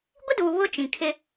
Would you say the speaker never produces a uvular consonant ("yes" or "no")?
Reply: yes